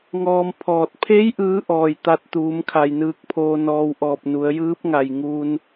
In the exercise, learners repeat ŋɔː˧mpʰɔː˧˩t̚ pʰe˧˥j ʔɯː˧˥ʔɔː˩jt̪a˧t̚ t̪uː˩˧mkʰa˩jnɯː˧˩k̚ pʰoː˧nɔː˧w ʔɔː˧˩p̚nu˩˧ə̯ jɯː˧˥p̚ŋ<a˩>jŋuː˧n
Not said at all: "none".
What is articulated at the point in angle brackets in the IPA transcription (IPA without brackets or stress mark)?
a˩